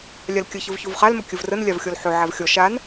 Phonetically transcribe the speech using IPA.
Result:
lʲalkʲəçəvçʊv χalmɵ kʲəvrənlʲavxʲɔl ħɵ ʕavxʲɔ ʃan

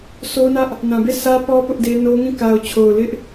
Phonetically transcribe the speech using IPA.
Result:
sʰo˦nä˦ʔ | nã˨be˦˨ sä˦pɔ˦ pʊ˦ʔde˦ no˦ŋĩ˦˨ ka˨ʊ̯t͡ɕʰo˨ʊ̯lɪ˦ʔ

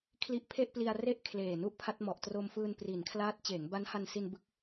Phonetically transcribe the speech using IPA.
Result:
kʰli˦˥ʔpʰe˥˩ʔpli˧a̯re˥˩ʔ kʰleː˨˩nu˥˩ʔpʰa˦˥t̚mɔ˨˩ʔ tro˧mfɯː˧n pri˩˦nkʰlaː˦˥t̚ t͡ɕeː˩˦ŋba˦˥nha˧nsi˧n bɯ˦˥k̚

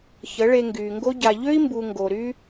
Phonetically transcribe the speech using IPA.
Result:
çə˨˦ɭe˧ŋɡyː˨ŋɡo˦ ɟa˨ʎø˦i̯mbu˨ ŋɡo˨ɾyː˦

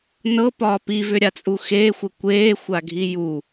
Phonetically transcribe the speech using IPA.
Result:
nɤpɒː pivʏɾʲat͡sʼu xexʷə kʷeːxʷaɡʱi ju

